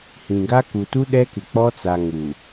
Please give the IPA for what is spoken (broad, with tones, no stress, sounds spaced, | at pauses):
h ĩ˨ ɡ a˦ k u˨ t u˦ ɗ ɛ˦ k ɪ˨ k͡p ɔ˦ t͡s a˨ ŋ u˨